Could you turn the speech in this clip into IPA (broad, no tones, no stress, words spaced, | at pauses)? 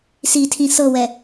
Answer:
sitʰĩ sɤwɛ